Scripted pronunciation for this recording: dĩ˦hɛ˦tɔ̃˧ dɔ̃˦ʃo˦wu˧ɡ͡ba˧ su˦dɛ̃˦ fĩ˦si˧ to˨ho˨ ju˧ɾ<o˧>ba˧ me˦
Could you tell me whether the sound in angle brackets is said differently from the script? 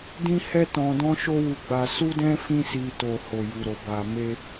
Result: no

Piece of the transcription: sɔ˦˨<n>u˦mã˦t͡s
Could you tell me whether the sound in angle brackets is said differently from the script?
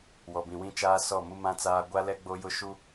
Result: yes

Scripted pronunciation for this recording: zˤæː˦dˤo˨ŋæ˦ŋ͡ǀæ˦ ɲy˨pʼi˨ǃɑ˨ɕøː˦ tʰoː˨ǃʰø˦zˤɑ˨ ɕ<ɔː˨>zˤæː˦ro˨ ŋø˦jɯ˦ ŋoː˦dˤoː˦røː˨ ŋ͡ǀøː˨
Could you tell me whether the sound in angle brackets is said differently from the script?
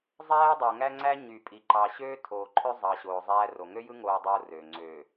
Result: yes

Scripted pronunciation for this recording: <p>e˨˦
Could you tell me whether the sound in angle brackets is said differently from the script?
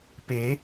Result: no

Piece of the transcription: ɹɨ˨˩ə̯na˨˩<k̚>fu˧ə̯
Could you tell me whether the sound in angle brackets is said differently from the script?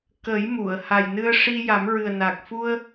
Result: no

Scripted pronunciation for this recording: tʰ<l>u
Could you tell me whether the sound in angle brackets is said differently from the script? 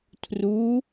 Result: yes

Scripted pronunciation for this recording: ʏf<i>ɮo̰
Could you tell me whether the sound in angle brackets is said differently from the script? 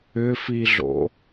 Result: no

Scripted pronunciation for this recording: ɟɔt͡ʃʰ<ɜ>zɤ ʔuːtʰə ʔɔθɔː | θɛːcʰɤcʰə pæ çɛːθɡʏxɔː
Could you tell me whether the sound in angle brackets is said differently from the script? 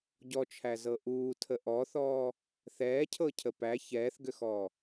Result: yes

